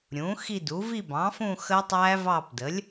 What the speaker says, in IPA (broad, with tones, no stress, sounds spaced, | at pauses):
ɾʲ ũ˩˥ x i˦˨ d u˩˥ v i˦˨ b ɑ̃˩˥ f ũ˦˨ x əː˦˥ tˤ æː˦˥ v ɑː˦˨ p d ə˩˥ lʲ